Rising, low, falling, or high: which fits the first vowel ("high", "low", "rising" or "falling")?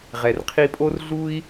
low